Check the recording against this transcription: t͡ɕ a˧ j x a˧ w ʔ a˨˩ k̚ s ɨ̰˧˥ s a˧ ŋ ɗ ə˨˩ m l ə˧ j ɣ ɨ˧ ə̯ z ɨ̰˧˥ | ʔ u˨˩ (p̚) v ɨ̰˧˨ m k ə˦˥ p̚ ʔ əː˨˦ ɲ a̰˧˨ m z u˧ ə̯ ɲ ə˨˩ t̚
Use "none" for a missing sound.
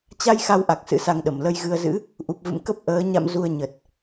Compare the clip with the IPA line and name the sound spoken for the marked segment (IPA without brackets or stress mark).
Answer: p̚